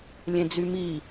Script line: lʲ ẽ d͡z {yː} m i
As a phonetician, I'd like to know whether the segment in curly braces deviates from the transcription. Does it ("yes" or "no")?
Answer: yes